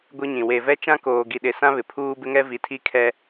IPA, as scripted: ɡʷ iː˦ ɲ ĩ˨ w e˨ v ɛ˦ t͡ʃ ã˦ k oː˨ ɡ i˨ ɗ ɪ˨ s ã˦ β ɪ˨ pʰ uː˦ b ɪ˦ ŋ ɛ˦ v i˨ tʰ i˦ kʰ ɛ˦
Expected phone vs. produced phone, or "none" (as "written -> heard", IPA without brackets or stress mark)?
iː˦ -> i˦